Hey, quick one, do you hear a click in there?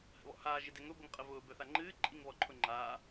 yes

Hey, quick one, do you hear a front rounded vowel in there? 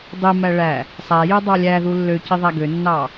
yes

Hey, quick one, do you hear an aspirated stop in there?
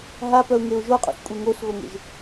no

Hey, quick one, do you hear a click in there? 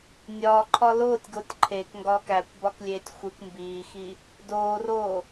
yes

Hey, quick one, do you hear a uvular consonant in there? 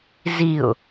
no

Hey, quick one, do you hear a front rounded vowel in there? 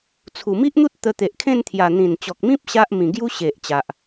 no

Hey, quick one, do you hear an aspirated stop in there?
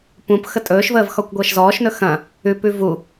no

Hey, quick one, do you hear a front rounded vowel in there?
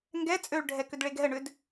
yes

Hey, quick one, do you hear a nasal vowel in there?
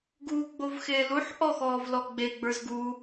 no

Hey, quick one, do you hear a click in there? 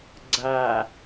yes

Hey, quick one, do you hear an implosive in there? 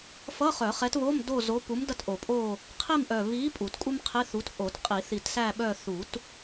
yes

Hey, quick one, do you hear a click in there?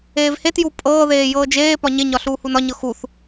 no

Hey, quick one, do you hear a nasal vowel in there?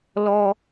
no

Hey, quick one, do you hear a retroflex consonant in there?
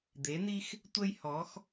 no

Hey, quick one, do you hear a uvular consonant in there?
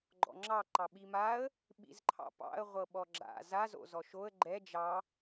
yes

